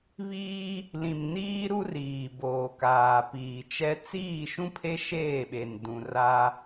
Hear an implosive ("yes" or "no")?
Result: yes